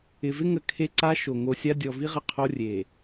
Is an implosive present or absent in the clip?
absent